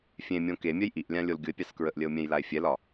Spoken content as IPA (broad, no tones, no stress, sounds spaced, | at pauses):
fʲ ẽ mʲ õ k e mʲ œ j ʔ i ʔ lʲ ã lʲ o l ɡʲ ʊ e̯ pʲ ɑ s k ɹ ə ʔ lʲ ə o̯ mʲ ɛ̃ j l a e̯ fʲ ɛ l ɒ